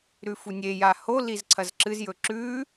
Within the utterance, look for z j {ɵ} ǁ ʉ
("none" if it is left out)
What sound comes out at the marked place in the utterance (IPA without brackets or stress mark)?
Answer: ɵ